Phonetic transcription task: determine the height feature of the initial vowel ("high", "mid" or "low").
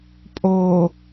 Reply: mid